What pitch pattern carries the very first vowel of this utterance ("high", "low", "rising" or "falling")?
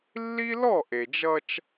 high